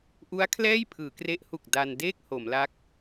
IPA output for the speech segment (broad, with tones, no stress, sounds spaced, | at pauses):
ʔ u˦˥ a̯ kʰ l ɛː˥˩ j pʰ ɯː˩˦ k r e˦˥ ʔ h u˨˩ k̚ d a˧ n d eː˥˩ k̚ h o˩˦ m l a˦˥ k̚